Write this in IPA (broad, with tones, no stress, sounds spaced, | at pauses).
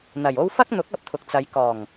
n̪ ɐ˨˩ j o˥ w f ɐ˥ k̚ n̪ ʊ˨˥ k̚ ɐ˨ p̚ t̪ʰ ʊ˨ k̚ t͡s ɐ˨˧ j k ɔː˨˩ ŋ